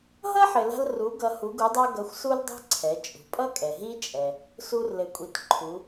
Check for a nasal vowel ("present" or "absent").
absent